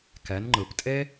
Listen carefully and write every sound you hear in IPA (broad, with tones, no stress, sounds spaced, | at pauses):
k ɛ˩˧ n ŋ͡ǃ ɯ˩ p tʼ e˥